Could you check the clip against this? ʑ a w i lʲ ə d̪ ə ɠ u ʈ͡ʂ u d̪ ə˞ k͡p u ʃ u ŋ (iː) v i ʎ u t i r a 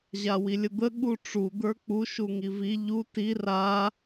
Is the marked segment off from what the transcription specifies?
yes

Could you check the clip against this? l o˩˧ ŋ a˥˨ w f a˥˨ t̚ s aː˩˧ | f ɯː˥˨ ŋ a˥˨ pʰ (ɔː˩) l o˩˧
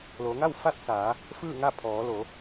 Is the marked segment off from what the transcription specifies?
yes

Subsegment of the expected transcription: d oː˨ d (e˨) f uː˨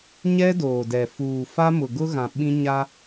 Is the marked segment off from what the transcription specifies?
yes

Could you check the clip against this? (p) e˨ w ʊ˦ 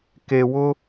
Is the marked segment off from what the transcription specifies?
yes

